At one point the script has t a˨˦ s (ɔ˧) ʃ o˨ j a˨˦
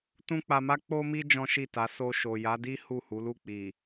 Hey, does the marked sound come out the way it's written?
no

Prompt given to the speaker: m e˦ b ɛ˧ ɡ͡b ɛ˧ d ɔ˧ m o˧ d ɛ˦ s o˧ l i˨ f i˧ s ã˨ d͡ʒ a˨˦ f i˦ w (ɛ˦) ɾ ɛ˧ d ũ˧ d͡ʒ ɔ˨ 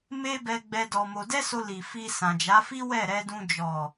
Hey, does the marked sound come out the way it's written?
no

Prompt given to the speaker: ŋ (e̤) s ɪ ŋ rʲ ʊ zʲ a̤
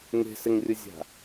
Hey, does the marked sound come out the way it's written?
yes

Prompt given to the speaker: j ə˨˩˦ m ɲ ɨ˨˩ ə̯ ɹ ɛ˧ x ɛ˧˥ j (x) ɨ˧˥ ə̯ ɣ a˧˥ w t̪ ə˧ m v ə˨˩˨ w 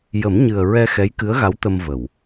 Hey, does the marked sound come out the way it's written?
no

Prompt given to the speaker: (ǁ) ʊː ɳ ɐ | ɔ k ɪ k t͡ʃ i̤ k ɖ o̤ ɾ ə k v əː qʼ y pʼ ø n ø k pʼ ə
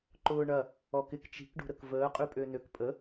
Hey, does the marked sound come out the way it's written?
no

